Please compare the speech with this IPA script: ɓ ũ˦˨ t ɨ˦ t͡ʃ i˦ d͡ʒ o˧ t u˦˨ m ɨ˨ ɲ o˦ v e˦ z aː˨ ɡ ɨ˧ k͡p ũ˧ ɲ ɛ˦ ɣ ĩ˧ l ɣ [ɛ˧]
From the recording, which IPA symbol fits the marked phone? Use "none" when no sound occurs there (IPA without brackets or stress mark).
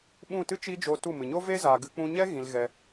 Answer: ɛ˧